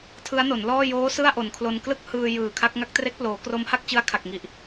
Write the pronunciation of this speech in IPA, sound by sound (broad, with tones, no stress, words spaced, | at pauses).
tʰɯ˦˥a̯no˩˦nlɔː˥˩ joː˦˥ sɯ˥˩a̯ʔo˨˩nkʰlo˧n klɯ˥˩k̚hɯː˧ jɯː˨˩kʰa˦˥k̚ ŋa˦˥k̚tre˦˥k̚ploː˩˦ kro˦˥mha˥˩k̚t͡ɕɯ˦˥a̯ kʰa˨˩k̚ŋi˨˩ʔ